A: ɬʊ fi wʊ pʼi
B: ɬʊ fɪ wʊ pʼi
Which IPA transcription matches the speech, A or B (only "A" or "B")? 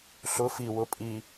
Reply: A